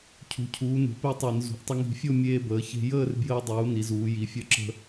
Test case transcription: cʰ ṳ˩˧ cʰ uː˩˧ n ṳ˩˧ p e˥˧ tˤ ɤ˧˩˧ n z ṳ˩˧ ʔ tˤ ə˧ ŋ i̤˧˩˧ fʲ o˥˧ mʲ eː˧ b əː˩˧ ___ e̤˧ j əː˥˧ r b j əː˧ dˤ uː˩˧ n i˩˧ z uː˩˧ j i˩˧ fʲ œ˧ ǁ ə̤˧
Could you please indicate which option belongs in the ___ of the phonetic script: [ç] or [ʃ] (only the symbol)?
ç